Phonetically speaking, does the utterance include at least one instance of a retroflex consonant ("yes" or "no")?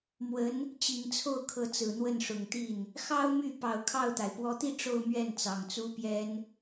yes